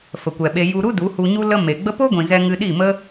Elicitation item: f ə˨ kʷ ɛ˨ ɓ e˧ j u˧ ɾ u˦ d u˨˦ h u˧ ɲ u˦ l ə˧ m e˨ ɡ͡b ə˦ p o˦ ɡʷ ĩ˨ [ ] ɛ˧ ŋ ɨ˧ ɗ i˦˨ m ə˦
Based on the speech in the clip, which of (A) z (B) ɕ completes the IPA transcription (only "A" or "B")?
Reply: A